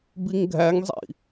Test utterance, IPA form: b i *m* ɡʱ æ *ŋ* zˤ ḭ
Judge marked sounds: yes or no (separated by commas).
no, yes